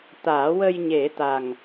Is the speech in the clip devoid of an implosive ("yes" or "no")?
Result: yes